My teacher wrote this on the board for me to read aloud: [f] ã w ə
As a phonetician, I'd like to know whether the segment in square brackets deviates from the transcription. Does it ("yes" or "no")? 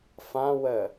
no